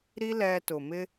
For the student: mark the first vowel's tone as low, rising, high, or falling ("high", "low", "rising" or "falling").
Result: high